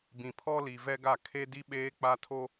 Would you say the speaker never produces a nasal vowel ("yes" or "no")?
no